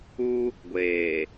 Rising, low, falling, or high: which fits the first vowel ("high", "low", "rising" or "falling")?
high